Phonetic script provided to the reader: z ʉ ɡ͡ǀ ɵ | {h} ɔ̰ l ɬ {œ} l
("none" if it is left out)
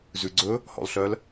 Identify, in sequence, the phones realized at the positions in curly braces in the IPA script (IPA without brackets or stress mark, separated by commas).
h, œ